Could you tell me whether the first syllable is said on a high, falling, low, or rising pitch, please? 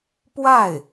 falling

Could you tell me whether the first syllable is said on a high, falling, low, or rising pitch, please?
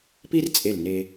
high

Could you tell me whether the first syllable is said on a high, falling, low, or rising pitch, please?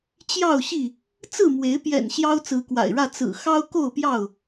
falling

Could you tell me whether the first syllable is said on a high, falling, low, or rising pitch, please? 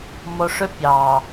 low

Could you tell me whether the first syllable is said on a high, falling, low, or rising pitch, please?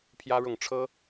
high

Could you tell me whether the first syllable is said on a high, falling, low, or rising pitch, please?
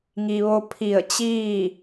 low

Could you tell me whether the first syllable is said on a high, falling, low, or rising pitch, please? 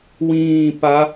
falling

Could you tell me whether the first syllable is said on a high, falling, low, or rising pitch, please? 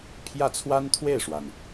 falling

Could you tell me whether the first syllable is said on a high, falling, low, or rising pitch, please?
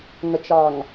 low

